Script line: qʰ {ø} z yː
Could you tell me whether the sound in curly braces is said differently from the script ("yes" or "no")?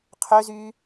no